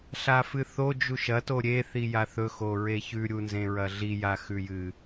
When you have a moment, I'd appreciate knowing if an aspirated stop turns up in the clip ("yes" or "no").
no